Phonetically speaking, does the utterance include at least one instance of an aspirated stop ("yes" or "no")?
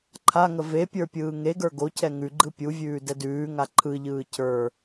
yes